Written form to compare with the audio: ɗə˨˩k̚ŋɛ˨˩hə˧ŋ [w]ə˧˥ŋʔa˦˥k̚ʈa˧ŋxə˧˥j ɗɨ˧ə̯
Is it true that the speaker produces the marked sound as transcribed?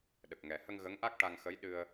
no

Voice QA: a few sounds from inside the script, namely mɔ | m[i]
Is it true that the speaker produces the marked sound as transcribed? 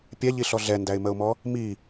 yes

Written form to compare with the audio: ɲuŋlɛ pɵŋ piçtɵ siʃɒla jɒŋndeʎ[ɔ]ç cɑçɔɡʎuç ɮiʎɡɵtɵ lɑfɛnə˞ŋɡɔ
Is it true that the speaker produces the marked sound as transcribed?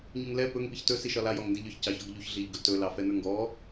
yes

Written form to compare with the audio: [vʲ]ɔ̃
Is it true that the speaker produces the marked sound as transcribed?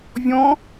yes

